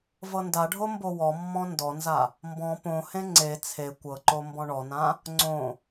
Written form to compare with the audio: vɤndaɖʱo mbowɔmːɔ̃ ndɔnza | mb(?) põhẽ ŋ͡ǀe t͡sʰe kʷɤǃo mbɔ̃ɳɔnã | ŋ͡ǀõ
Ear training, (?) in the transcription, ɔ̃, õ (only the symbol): ɔ̃